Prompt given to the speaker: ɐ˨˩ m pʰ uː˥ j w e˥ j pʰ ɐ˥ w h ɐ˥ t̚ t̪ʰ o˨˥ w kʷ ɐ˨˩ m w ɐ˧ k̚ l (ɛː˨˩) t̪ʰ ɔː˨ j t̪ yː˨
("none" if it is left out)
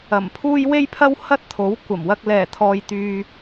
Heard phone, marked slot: ɛː˨˩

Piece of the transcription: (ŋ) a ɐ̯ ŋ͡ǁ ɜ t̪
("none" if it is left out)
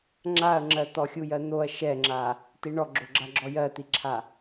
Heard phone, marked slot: ŋ͡ǁ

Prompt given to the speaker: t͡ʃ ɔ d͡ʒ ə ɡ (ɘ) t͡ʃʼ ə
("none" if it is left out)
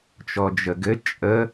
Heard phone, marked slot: ɘ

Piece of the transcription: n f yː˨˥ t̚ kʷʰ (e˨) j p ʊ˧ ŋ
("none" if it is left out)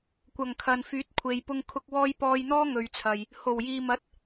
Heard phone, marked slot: e˨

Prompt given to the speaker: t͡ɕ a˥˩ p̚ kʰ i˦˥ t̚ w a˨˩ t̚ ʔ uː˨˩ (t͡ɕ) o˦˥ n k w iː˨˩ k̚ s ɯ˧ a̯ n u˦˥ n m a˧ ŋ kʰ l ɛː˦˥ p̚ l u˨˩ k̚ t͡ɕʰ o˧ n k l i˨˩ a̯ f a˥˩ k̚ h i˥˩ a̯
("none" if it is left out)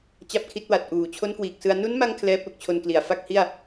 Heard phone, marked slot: t͡ɕʰ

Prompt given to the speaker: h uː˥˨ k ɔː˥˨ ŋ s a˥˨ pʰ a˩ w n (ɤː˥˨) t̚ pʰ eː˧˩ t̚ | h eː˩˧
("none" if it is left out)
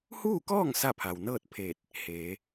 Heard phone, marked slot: ɤː˥˨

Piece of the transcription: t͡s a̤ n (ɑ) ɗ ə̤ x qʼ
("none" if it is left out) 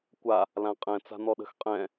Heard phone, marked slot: ɔ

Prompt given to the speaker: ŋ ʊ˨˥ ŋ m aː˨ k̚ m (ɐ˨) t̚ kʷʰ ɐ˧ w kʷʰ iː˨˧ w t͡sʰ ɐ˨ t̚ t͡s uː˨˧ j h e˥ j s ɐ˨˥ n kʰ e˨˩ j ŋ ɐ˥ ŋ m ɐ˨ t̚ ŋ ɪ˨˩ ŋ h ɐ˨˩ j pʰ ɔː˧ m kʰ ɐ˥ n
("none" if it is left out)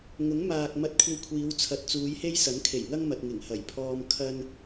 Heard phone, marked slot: ɐ˧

